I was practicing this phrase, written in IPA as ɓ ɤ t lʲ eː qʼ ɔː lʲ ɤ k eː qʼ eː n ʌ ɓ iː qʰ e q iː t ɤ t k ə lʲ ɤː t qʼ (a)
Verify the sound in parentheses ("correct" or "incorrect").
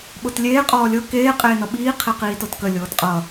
incorrect